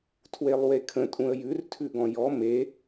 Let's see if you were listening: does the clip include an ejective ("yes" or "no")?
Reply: yes